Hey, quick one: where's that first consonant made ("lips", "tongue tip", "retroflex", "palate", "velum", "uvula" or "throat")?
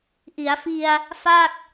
throat